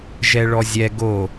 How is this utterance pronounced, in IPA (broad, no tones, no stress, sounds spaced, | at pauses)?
ʒ ɛ ɭ ɔ zʲ ɛ ɡ o